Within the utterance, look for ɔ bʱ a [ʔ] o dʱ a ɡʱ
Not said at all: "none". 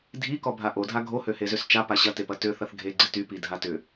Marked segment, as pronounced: ʔ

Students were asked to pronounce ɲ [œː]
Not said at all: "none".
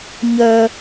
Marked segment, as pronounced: œː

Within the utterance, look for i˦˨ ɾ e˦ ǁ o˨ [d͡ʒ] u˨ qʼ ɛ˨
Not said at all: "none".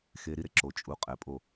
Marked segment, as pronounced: t͡ʃʼ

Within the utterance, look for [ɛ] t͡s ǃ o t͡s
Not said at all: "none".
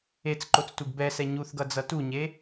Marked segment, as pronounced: e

